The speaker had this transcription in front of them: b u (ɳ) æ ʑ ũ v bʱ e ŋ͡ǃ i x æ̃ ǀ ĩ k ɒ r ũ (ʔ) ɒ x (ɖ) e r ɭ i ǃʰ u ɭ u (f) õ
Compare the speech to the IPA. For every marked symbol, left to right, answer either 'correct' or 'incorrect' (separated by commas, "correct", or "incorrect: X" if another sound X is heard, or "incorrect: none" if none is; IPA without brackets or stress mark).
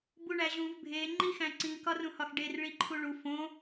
correct, incorrect: h, correct, correct